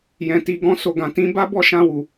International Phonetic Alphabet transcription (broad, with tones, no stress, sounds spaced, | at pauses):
j ɛ̃˨ t i˨ ɡ ɔ̃˧ s o˨ ɡ ã˨ t ĩ˨˦ b a˦ b ɔ˦˨ ʃ ã˧ w u˨